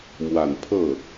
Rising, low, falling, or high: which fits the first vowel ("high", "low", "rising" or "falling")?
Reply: low